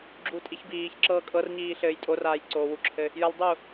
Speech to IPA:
ɡ͡ǁ u tʼ i ç b iː ç ǁ ɤː kʼ ɤ r ɲ iː ɬ ɘː j tʼ o r aː j ǀ oː w u ǁʰ ɘ | j ə lˠ dˤ u

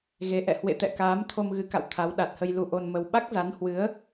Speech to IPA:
ɣ e˨˦ ʔ ɛ̰˧˨ h w ḛ˧˨ t̪ ɛ̰˧˨ k aː˨˦ m t̪ʰ o˧ m ɣ ɨ˨˦ k a̰˧˨ w t̪ʰ a˨˦ w ɗ a˨˩ t̚ h ə˧ j l u˧ ʔ o˧ n m ə˧ w ɓ a˦˥ k̚ z a˨˦ n h w ɨ˨˦ ə̯

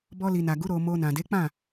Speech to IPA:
b ɔ˧ l i˨ n a˨ ɡ u˨˦ ɾ o˧ m o˧ n ã˨ d e˨˦ k͡p ã˦˨

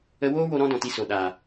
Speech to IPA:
ə˧ w oː˦ w o˧ ɾ ɔ̃˦ d ɔ̃˨ t i˧ s o˨ ɗ a˨

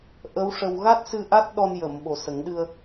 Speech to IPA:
ʔ ə˧˥ w ʂ ə˧ w ɣ a˦˥ t̚ s ɨ˧ ʔ a˦˥ t̚ ɗ ɔ˧ n j ə˨˩˨ m ɓ o˨˩ s ə˨˩˦ ŋ ɗ ɨ˧ ə̯

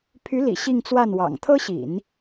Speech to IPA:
pʰ y˧˥ l ḭ˨˩ ɕ i˥˧ ŋ t͡s w a˥˩ n w ɑ̰˨˩ ŋ t̪ʰ ɤ˥ ɕ ḭ˨˩˦ n

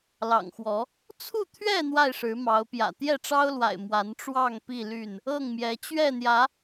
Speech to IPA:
l ɑ̰˨˩ ŋ x w ɔ˨˦ | t͡sʰ u˥˨ t̪ʰ ɥ ɛ˥˨ n̪ w a˥˨ ɪ̯ ʂ ɻ̩˨˦ m ɑ˨˦ ʊ̯ p j ä̰˨˩ t̪ j ɛ˥˨ ʈ͡ʂ ɑ˦ ʊ̯ l w a̰˨˩ ɪ̯ m w a˨˦ n ʈ͡ʂ w ɑ˥˨ ŋ p i˥˨ l y˥˨ n | ɤ˥˨ ŋ m j ɛ˨˦ t͡ɕ ɥ ɛ˥˨ n̪ j ä˨˦

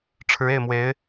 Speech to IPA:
ʈ͡ʂʰ ɻ̩˧˥ e˥˩ ɪ̯ m w e˧˥ ɪ̯

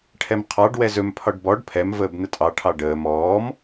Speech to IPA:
ʈʰ ɛ m qʰ ɑ ɖ w ɛ z ɵ m pʰ ɒ ɖ b ɔ ɖ pʰ ɛ m v əː b n ə tʼ ɑ ʈʰ ɑ ɖ əː m ɔː m

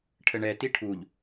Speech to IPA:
ʈʰ ə ɳ ɛ t i ʈʰ u ʎ

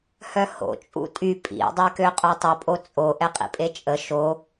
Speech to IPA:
h œ h o̰ t͡ʃʼ ṵ tʼ y pʼ ḭ dˤ e k ø qʼ œ tˤ ə pʼ o t͡sʼ o ʔ ɛ qʼ ḭ pʼ e t͡ʃʼ ə ʃ o

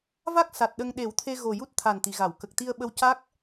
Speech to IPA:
v a˦˥ k̚ s a˨˩ t̚ ɗ ə˧ ŋ ɗ e˨˩˦ w t̪ʰ e˧ ɣ o˨˩ j u˦˥ t̚ t̪ʰ a˨˩ n t̪ i˨˩˨ ɣ a˨˩˨ w k ə˨˩ k̚ t̪ i˧ ə̯ ɓ ə˧ w c a˦˥ k̚

